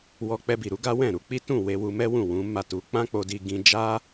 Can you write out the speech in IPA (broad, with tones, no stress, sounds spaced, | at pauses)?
w ɔ˧ k͡p ɛ˧ b i˨ ɾ u˨˦ ɡ a˦ w ɛ̃˦˨ ɾ u˧ k͡p i˦ t ũ˦˨ w e˧ w u˧ m ɛ˦ w ũ˦˨ w ũ˨˦ m a˦˨ t u˧ k͡p ã˦ k͡p o˧ d i˧ ɡ ĩ˧ d͡ʒ a˦